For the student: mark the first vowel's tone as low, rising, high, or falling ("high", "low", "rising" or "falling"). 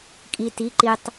low